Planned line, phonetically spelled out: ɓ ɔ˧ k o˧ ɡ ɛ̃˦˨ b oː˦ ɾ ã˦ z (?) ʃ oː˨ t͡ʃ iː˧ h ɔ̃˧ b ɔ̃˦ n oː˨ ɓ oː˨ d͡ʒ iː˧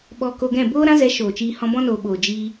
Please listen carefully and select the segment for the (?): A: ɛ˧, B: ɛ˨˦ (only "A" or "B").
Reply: B